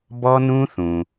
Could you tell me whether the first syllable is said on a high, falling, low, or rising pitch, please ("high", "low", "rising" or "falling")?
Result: high